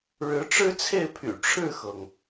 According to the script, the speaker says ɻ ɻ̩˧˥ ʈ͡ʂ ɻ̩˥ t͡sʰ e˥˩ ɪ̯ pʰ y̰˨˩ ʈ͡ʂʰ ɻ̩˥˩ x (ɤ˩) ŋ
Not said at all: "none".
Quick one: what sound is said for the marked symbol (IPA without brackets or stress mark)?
ɤ˩